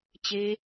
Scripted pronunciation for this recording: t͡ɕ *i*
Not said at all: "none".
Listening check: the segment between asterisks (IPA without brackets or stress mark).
e